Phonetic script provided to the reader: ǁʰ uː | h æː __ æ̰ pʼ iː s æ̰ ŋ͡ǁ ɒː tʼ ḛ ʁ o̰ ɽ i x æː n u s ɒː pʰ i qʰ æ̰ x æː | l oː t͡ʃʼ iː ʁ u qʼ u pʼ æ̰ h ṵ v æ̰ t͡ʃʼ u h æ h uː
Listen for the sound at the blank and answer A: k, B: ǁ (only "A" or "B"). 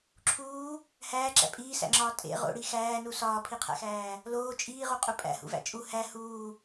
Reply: B